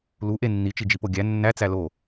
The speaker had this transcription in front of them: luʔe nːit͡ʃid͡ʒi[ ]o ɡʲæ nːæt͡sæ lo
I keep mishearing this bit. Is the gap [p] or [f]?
p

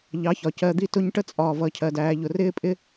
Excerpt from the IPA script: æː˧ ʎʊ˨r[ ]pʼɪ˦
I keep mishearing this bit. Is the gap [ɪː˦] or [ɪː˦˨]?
ɪː˦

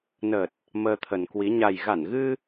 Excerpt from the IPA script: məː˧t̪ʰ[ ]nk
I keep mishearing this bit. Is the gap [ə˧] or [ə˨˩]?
ə˨˩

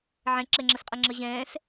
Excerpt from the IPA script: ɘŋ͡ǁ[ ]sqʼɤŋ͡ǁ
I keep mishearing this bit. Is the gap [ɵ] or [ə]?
ə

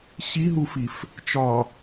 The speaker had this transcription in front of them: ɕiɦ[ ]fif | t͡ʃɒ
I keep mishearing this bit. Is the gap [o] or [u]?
u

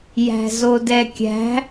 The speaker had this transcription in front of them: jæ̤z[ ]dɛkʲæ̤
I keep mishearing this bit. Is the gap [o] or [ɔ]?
o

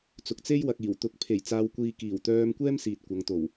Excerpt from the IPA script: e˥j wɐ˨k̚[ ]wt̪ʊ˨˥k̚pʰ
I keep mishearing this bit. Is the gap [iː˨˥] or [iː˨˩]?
iː˨˩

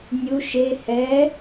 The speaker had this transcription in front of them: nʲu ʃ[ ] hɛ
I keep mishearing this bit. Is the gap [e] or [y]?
e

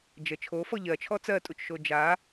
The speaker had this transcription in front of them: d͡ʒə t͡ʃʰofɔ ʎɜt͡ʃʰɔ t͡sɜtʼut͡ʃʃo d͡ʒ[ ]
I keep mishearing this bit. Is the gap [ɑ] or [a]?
a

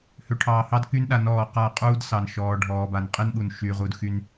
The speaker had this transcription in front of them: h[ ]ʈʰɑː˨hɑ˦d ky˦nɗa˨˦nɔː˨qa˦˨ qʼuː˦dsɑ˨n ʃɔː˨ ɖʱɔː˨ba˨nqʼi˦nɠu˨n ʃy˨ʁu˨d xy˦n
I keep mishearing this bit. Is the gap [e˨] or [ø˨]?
ø˨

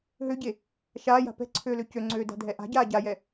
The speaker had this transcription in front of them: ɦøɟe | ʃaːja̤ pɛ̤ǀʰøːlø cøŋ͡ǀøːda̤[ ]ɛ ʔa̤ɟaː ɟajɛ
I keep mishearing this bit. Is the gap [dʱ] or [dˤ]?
dʱ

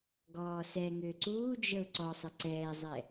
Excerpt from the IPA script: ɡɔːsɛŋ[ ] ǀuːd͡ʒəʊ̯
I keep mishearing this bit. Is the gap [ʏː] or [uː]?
ʏː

